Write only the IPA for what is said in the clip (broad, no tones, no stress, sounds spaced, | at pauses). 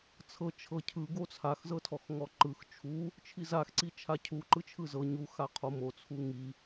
t͡sʰ ɤ t͡ʃʰ ɤ cʰ ɯ ɡ o t͡sʰ a x z ɤ tʰ ɔ x ŋ ɔ ǃ ɯ x t͡ʃʰ u | t͡ʃʰ i z a x ǀ i t͡ʃʰ a cʰ u ǃ ɯ t͡ʃʰ ɯ z ɤ ɲ u x a qʰ o m o t͡sʰ u ŋ i